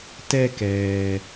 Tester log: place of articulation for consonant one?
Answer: alveolar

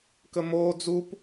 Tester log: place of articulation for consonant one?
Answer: velar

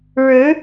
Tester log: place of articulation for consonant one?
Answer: retroflex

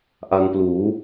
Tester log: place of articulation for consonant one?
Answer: glottal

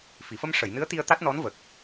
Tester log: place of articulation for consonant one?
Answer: labial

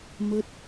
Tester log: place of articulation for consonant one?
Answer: labial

